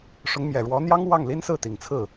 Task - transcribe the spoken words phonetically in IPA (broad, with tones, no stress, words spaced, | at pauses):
ʂʊ˧˥ŋmjɛ˨˩ɻwɔ˧˥n̪jɑ˥ŋ wɑ˥˩ŋli˥nsɹ̩˥˩ t̪i˨˩ŋt͡sʰɹ̩˥˩